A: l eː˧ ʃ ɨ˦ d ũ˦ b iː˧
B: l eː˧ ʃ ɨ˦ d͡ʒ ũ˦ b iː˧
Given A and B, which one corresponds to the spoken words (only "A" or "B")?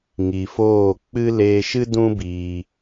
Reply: A